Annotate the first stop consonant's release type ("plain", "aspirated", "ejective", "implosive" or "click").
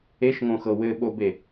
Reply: implosive